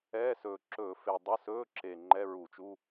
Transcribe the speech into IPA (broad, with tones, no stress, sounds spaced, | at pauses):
ɛː˧˥˧ s ɵː˨˩ ǁ ɵ˧˩˧ f e˨˩ dˤ ə˧˥˧ s ɵː˧˥˧ ǁ e˨˩ ŋ͡ǃ ɛ˧˥˧ ɹ u˧˩˧ t͡ʃ u˧˥˧